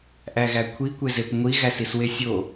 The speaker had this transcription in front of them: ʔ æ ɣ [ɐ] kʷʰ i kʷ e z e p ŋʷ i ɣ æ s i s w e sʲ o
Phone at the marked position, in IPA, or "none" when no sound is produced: æ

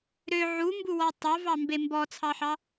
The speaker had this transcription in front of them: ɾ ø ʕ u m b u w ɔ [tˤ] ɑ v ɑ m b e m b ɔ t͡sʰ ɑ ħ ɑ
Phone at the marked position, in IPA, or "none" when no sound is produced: tˤ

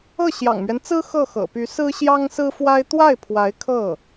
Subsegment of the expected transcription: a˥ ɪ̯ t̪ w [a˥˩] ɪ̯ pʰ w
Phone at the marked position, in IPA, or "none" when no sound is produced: a˥˩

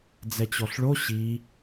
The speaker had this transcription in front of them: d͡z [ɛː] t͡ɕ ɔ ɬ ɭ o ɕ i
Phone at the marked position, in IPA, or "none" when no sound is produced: ɛ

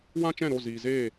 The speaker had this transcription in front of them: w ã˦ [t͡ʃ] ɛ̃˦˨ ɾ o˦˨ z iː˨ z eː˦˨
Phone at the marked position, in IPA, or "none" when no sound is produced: t͡ʃ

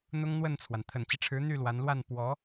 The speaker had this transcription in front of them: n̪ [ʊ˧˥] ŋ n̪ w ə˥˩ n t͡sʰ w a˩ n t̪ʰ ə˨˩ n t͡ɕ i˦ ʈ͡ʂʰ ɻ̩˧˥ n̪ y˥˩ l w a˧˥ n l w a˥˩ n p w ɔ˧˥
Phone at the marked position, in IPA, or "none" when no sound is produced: ʊ˥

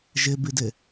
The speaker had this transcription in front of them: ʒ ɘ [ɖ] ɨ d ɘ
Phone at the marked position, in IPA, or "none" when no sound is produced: b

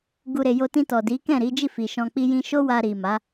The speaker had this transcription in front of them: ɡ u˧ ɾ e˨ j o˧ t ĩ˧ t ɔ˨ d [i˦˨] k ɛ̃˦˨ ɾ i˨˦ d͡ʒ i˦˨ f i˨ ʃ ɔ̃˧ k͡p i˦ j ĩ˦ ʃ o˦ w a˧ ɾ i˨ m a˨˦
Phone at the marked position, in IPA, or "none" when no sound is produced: i˨˦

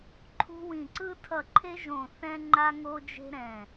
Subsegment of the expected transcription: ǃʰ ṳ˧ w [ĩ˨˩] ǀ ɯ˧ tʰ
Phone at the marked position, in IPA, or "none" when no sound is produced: ĩ˨˩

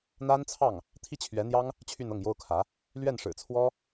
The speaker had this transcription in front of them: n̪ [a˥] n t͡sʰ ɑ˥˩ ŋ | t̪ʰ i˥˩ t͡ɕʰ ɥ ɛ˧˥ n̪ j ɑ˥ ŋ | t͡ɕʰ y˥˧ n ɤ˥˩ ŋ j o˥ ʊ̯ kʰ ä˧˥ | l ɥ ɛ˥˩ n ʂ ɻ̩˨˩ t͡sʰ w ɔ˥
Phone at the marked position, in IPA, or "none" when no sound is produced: a˥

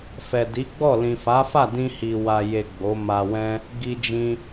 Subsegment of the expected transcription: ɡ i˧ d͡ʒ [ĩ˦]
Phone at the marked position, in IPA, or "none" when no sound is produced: ĩ˧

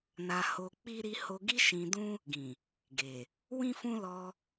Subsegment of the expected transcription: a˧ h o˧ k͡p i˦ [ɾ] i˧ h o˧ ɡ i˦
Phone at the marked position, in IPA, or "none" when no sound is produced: ɾ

